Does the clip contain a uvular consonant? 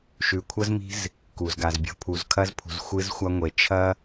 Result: no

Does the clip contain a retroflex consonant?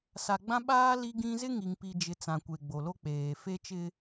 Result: no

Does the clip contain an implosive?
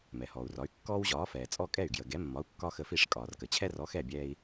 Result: no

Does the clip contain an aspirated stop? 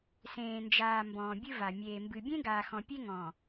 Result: no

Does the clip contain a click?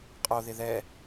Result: no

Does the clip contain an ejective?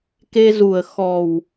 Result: no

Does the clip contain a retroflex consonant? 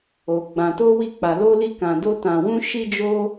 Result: no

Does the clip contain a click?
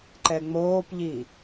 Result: yes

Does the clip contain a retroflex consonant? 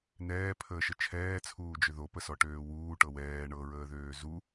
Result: yes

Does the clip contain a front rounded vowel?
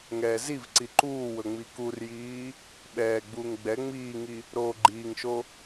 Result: no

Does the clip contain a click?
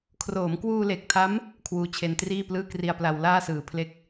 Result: no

